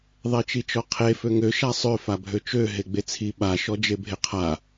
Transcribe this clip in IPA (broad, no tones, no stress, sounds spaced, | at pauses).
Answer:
ðˤ e t͡ʃ i t͡ʃ ɔ qʰ e f ø ŋ ø ʃ a sˤ ø f a bʱ ø t͡ʃ ø ɦ e ɡ͡b e t͡sʰ i ɓ a ʃ ɔ d͡ʒ e bʱ e qʰ a